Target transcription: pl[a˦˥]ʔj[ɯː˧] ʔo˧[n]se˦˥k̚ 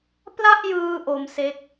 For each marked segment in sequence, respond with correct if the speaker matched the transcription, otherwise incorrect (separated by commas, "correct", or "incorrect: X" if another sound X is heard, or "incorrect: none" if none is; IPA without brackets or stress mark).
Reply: incorrect: a˥˩, correct, incorrect: m